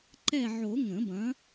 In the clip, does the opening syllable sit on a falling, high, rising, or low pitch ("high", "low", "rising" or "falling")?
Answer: falling